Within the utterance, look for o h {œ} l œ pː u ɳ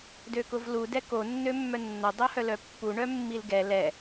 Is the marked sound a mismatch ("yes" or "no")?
no